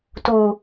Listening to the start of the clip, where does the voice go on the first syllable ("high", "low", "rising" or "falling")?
low